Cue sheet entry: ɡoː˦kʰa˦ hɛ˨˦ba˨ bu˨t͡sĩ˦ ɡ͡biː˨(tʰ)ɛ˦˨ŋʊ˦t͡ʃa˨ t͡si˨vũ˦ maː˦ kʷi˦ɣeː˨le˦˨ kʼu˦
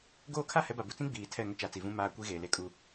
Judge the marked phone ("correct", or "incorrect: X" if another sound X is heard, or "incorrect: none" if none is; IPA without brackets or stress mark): correct